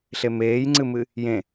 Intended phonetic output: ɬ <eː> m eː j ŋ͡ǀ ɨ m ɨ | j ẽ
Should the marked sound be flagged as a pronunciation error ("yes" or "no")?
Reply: yes